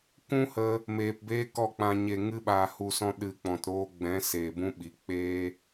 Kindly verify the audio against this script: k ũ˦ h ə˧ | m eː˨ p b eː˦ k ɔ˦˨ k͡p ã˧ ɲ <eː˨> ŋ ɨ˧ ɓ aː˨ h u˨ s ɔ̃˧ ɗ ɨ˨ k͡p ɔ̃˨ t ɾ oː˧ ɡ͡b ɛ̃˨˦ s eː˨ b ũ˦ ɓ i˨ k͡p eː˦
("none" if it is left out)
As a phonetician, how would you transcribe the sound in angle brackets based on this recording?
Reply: e˨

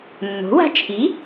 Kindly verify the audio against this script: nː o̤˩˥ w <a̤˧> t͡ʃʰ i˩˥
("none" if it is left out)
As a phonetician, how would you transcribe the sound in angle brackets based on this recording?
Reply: a̤˧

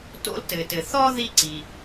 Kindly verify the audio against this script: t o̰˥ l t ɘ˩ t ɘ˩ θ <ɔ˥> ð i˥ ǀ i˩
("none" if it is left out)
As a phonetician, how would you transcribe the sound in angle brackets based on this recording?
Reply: ɔ˥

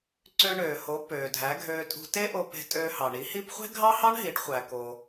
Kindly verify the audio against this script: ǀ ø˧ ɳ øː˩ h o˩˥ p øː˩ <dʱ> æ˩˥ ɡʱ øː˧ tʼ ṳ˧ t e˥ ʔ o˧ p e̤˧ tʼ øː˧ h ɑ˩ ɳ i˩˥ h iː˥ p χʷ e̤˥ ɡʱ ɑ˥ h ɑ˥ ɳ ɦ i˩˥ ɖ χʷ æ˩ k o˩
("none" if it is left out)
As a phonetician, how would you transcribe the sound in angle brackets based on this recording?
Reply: dʱ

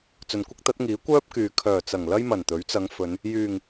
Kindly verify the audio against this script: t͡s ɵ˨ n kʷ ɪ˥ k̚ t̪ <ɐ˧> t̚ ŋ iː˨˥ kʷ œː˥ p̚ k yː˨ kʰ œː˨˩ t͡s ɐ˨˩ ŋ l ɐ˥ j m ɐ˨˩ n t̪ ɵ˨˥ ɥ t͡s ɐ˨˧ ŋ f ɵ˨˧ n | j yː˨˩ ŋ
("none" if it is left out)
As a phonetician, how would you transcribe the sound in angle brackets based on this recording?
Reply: ɐ˨˥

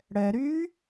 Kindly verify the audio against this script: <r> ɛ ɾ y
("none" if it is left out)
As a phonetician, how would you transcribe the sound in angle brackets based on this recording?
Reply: ɽ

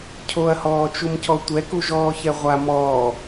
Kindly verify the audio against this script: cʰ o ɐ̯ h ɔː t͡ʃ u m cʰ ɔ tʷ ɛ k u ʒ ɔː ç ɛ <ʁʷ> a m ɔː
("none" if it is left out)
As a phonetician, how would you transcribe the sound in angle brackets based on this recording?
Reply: ʁʷ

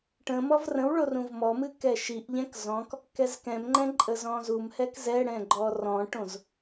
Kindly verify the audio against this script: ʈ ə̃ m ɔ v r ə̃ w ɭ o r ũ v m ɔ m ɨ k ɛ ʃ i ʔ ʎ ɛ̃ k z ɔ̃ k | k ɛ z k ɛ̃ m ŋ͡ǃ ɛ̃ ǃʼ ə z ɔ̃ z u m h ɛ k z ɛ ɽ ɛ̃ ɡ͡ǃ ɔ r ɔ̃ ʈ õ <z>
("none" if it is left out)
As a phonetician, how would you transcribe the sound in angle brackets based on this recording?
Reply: z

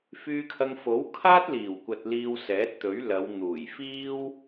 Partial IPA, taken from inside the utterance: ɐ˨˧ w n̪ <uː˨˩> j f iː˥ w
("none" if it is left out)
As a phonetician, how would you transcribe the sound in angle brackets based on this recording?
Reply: uː˨˩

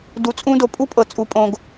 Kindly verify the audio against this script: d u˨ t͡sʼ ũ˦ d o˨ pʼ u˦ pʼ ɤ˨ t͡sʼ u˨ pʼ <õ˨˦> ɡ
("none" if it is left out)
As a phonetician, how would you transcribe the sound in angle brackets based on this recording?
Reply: õ˨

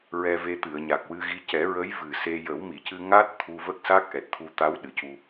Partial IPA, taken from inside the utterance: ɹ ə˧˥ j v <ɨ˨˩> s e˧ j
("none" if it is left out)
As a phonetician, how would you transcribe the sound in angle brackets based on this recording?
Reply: ɨ˨˩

